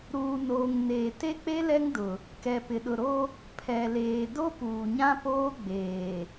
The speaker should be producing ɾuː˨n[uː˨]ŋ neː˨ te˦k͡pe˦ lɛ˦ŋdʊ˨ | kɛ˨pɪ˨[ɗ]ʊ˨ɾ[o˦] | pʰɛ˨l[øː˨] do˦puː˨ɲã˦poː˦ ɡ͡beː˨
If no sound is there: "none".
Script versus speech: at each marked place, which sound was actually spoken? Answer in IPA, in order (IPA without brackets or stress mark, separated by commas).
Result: oː˨, ɗ, o˦, eː˨